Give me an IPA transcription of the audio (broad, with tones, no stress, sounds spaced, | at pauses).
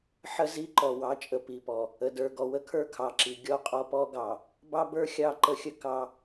ħ ə˦ z i˦ ǃ ɔ˨ w ɑ˨˦ t͡ʃʼ ə˨ p i˨ p ɔ˨ | ə˨ d ə˞˨ ɡ ɔ˨ w ə˦ kʰ ə˞˦ kʰ ɑ˨ ǁ i˨ ɡʲ ɔ˦ qʼ ɔ˦ p ɔ˦ ɡ ɑ˨ | b ɑ˦ b ə˞˦ xʲ ɑ˦˨ ǃ ə˦ xʲ ə˦ k ɑ˦